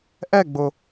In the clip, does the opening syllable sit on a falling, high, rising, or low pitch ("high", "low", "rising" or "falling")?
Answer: falling